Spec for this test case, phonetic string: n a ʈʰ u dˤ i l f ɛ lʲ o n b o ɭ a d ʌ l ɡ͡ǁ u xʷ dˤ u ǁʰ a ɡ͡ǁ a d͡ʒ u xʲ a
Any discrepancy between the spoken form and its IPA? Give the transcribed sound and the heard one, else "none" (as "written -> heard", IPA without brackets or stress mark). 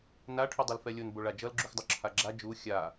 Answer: d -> d͡ʒ